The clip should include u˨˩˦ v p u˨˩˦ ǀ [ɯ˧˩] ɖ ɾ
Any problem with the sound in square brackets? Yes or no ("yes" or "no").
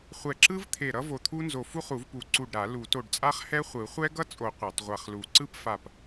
yes